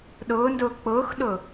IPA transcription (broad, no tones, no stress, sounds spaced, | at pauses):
ɗ ʊː n d ʊː k͡p ʊː x ɗ ʊː